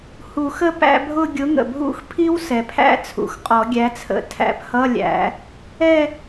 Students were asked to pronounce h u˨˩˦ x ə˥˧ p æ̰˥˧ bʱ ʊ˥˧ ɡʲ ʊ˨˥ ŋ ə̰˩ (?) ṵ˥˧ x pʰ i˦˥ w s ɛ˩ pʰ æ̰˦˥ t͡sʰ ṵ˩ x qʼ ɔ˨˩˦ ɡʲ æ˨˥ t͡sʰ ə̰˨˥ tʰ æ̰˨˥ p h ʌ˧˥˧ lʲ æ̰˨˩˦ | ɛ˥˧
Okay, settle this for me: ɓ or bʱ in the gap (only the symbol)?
bʱ